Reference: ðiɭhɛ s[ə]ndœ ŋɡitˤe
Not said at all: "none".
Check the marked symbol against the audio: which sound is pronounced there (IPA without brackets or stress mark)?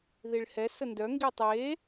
ə